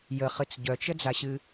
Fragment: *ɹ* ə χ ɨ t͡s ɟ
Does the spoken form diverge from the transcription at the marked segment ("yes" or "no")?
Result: yes